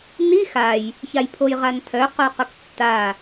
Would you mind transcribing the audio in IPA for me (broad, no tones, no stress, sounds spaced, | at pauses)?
n i x a j | ç a j pʰ o j ʁ a n tʰ œ q o q ʊ k tː a